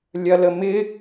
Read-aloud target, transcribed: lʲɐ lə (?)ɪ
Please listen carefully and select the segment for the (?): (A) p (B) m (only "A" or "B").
B